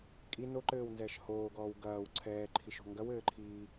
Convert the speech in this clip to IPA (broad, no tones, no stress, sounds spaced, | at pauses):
kʼ i n o ǃ ɘː w n z ɛ ʃ h oː ɡ ɔː w ɡ ɐː w ǀʰ ɛː ǃʰ i ʃ o̤ ŋ ɡ ɐ w ɘː ǃʰ iː